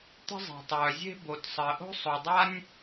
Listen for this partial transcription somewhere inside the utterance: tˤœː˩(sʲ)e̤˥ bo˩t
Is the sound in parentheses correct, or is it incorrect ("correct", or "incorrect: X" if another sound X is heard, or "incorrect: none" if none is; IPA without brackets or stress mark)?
incorrect: zʲ